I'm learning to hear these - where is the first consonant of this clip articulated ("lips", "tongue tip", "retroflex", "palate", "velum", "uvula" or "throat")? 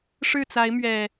retroflex